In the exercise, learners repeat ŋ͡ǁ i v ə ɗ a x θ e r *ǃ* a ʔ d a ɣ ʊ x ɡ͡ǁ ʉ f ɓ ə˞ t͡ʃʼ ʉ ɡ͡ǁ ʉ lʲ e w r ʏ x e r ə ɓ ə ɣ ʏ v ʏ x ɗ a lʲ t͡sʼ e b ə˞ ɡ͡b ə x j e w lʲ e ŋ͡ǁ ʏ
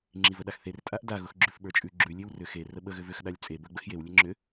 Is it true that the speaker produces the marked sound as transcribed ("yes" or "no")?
no